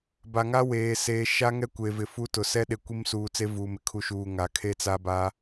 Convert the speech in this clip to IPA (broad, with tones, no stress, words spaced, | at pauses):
ba˨ŋa˦ weː˨ seː˨ʃa˦ŋɛ˦ kʷe˨vɪ˨fu˦tʊ˨ sɛ˦ɗe˨ kʷi˦msuː˨t͡se˦ vuː˨mɪ˨kʰu˨ʃuː˨ ŋa˨ kʰe˦t͡sa˦ ba˦